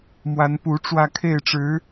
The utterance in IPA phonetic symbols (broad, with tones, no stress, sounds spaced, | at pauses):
m w a˧˥ n p u˧˥ ʈ͡ʂ w ä˥˧ kʰ e˥˩ ɪ̯ ʈ͡ʂ ɻ̩˧˥